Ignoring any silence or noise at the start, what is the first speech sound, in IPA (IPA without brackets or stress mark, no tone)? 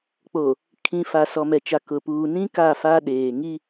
k͡p